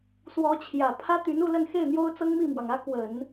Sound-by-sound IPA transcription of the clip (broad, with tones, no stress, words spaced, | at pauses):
swɔ˧˥t͡ɕʰjä˨˩ pʰä˥t̪y˧˥n u˥˧lə˥˧nxe˥˩ɪ̯ n̪jo˥ʊ̯t͡sɤ˥ŋmi˥˩mwɑ˩ŋ ä˥kwə˨˩˦n